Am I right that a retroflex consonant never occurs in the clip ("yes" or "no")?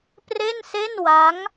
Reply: yes